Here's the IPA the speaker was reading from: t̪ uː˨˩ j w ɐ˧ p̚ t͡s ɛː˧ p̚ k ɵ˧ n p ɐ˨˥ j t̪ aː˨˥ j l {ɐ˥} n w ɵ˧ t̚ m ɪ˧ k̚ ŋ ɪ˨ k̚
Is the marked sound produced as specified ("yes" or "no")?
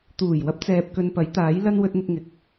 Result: no